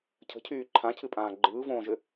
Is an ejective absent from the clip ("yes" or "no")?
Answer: no